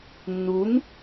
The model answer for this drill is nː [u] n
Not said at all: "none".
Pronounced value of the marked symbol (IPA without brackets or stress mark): u